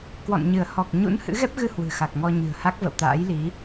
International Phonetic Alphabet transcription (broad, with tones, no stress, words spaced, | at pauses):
kwɔ̰˧˨nɲɨ˧˩ə̯ hɔ˨˩k̚ɲṵ˧˥n hɨ̰˧˥ɣɛ˦˥p̚ɣɨ˧ hwɨ̤˨˩xa˨˩k̚ŋɔ˧ ɲɨ̤˨˩ə̯ha˦˥k̚və̰˧˨w t̪a̰ː˧˥jli˨˦